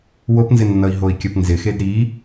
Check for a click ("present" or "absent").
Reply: absent